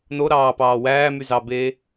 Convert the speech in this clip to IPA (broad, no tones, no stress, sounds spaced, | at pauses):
n o ɾ ɑː p ɑː w æː m y z ɑː b eː